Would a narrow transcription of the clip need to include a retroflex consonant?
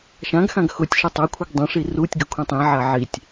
yes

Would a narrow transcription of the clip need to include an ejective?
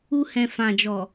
no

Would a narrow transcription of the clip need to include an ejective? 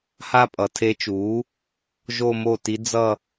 yes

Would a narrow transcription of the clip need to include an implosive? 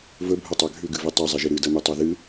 no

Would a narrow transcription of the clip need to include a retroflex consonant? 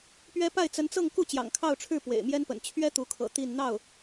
yes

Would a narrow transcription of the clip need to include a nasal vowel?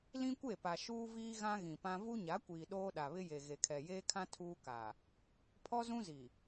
yes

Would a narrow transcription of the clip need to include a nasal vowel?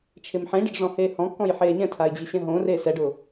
yes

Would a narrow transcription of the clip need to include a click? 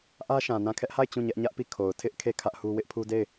no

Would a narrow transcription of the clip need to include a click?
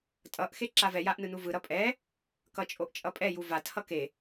yes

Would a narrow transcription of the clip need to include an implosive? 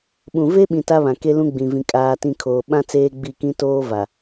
yes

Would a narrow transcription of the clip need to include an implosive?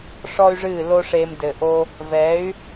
no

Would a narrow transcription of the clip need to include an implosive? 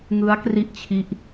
no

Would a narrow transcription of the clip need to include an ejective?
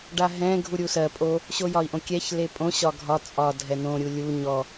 yes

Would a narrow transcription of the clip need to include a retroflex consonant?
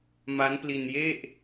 no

